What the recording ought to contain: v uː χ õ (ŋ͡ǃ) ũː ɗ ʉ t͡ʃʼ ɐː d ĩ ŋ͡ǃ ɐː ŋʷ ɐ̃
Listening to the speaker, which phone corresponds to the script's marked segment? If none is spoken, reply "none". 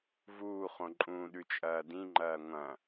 ǃʼ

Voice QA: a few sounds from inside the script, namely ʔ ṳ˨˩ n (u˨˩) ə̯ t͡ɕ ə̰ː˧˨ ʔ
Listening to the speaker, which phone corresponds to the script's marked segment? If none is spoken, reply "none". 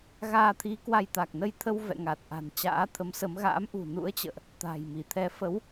ṵ˧˥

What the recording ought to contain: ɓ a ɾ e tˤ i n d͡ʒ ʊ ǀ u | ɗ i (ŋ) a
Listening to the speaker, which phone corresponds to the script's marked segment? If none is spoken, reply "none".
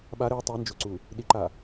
ǃ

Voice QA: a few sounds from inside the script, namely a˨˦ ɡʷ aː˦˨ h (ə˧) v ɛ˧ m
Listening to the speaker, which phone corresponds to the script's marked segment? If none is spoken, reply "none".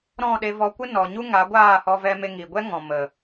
ɔ˧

